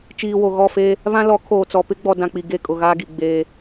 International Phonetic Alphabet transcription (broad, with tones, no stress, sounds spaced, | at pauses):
t͡ʃ iː˨ w o˨ ɣ ɔ˦˨ f eː˦ | β ã˦ l ɔ˨˦ kʰ oː˨ t͡s ɔ˨ p ɪ˦ ɡ͡b ɔ˨ d ã˨ k͡p i˨ ɡ e˦˨ kʼ ʊ˨ ɣ aː˦ ɡ i˨ ɡ͡b eː˦